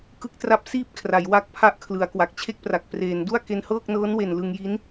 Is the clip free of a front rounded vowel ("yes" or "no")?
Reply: yes